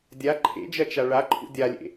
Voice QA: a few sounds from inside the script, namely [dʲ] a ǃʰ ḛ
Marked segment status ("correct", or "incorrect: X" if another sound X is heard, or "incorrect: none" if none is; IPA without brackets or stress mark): correct